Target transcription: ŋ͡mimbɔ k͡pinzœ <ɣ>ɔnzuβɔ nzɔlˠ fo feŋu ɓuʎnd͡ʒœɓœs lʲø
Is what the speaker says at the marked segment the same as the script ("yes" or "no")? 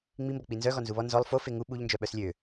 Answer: yes